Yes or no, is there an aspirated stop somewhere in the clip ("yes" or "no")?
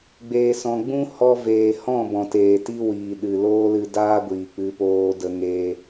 no